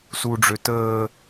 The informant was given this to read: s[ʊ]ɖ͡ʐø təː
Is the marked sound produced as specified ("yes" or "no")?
no